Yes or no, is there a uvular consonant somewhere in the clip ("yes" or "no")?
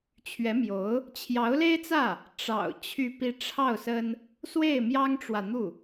no